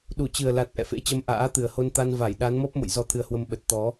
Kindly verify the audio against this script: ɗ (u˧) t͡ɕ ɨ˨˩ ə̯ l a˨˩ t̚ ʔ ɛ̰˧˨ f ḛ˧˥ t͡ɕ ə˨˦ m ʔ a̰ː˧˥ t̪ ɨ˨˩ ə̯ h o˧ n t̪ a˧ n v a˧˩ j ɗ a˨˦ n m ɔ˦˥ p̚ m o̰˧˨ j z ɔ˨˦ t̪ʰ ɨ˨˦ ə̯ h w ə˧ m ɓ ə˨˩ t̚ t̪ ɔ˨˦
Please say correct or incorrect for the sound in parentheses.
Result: incorrect: u˧˩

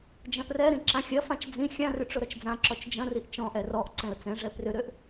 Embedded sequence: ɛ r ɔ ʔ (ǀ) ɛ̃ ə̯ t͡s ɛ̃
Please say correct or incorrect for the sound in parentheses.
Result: correct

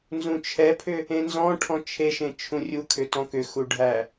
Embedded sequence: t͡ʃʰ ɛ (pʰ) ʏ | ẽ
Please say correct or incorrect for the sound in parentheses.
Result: correct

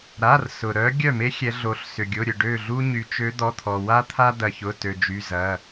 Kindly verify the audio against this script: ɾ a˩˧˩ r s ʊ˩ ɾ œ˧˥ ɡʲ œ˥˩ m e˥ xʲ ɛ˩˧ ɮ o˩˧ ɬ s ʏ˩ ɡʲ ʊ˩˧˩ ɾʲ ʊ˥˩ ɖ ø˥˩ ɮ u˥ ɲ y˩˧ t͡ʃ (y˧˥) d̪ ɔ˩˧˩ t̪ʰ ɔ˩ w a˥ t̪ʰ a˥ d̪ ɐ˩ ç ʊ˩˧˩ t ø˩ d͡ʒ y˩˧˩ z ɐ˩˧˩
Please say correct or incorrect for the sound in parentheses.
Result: incorrect: ø˧˥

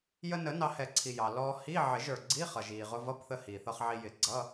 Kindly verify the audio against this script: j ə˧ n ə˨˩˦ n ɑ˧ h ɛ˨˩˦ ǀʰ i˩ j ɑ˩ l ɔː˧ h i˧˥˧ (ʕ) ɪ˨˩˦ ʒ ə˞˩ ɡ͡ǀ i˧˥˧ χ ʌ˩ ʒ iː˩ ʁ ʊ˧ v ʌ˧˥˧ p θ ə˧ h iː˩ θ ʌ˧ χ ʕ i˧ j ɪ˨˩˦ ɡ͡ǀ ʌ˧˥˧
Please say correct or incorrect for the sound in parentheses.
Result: correct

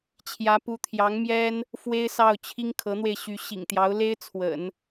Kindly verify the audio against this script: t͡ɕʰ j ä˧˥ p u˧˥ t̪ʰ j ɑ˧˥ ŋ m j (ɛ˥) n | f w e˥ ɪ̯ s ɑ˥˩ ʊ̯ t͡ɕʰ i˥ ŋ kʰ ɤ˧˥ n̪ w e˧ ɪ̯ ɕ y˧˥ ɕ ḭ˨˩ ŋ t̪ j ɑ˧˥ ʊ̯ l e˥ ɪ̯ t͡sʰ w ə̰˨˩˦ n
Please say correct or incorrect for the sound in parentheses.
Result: correct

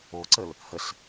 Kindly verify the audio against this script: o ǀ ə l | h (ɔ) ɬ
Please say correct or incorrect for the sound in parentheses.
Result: incorrect: ə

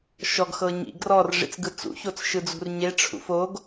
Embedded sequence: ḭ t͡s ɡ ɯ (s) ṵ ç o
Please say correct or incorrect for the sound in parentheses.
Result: incorrect: t͡s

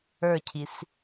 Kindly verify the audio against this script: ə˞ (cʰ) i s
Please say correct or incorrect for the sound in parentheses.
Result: correct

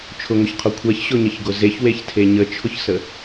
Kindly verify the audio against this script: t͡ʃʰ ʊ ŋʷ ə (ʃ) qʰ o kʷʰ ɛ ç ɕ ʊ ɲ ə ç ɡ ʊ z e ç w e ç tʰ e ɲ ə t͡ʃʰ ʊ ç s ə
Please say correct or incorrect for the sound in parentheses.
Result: incorrect: ç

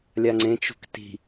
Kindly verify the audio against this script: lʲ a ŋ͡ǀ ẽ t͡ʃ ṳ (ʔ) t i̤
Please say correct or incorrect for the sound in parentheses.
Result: incorrect: k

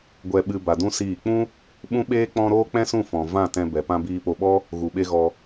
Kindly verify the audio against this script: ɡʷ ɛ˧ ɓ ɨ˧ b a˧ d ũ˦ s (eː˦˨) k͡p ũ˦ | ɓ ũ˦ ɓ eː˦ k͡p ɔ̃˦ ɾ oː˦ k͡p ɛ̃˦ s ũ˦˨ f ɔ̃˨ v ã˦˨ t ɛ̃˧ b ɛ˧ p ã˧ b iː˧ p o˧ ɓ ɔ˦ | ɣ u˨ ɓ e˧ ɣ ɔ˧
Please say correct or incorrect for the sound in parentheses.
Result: incorrect: iː˦˨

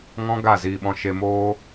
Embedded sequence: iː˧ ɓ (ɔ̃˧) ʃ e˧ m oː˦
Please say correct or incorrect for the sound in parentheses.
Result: correct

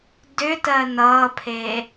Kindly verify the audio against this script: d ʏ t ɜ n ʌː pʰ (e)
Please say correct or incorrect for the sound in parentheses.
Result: correct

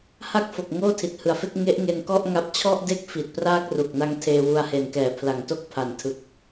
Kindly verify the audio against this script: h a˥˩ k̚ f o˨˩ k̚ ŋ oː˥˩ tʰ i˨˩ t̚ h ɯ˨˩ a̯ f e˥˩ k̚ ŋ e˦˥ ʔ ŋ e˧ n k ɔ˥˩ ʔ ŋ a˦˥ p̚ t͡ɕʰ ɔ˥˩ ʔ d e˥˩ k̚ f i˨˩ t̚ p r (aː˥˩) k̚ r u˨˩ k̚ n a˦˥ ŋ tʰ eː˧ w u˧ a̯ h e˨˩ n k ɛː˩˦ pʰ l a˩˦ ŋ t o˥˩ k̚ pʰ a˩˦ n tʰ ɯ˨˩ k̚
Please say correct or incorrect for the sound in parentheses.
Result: correct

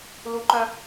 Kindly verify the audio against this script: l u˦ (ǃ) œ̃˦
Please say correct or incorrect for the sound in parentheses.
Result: correct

